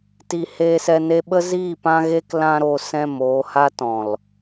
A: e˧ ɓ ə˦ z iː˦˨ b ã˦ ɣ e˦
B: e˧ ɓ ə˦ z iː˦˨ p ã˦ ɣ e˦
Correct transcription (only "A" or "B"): B